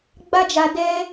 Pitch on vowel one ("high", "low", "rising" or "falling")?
high